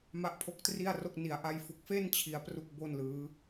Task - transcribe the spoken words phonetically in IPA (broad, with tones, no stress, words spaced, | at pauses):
ma˦˥ʔpʰo˦˥k̚tri˥˩a̯ro˥˩k̚ ni˨˩a̯ ʔa˧jfu˨˩k̚fe˥˩n t͡ɕʰi˦˥a̯pru˥˩k̚bo˥˩n lɯː˦˥